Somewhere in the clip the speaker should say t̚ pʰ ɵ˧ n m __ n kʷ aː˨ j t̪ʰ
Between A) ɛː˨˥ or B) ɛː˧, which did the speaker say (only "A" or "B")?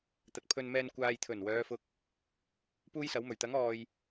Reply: B